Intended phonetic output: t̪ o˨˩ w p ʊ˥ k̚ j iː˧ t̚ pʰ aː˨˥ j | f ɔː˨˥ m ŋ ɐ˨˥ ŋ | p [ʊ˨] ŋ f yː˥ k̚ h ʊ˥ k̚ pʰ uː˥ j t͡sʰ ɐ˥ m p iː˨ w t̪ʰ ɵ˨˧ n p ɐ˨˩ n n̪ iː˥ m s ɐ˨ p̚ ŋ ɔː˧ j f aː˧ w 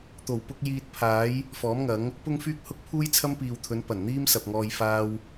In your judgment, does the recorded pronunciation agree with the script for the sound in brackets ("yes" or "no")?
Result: no